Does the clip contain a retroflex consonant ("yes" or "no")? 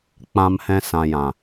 no